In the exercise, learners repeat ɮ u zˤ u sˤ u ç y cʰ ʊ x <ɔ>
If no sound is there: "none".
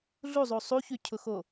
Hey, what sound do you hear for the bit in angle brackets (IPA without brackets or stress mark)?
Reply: o